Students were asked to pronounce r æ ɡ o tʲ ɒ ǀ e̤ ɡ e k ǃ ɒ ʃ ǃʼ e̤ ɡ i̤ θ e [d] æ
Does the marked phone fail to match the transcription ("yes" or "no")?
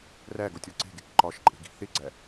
yes